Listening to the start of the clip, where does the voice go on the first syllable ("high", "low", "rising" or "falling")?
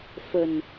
low